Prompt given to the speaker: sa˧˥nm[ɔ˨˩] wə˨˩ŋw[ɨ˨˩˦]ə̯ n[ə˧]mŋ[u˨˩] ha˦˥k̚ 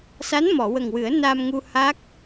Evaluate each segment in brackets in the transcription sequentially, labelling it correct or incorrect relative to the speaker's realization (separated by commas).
incorrect, correct, incorrect, incorrect